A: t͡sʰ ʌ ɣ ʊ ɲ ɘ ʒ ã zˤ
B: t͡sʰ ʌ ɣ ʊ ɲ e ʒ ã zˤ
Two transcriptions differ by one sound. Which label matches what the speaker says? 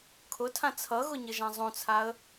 A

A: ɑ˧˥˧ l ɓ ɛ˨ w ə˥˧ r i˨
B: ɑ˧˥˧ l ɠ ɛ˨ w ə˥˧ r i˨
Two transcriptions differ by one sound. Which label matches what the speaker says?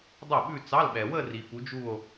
A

